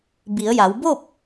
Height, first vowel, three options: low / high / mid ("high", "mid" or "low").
high